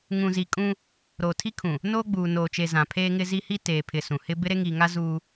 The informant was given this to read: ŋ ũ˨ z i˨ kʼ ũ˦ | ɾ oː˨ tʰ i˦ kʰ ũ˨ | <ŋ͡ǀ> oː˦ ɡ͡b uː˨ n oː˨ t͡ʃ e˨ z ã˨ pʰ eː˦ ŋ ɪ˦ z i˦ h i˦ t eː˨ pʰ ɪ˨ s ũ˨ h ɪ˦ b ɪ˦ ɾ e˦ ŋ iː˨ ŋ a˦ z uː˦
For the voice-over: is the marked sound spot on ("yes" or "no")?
no